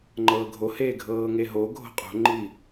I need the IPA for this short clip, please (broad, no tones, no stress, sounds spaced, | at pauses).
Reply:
ŋ͡ǃ ɤː ɡʱ o h eː ɡʱ ɤː ŋ e ɦ o ɡʱ o̤ qʼ o̤ ŋ͡ǃ i